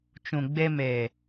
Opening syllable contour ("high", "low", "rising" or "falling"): low